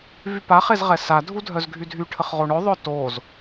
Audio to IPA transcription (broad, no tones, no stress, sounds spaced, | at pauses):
v y p a χ e z ʁ ɛ s a dʱ u dʱ œ z ɡʱ y dʱ y ʈʰ ə χ ʁ o ɳ œ ðˤ œ t o z